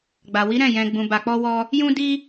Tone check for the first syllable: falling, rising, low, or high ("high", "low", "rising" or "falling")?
low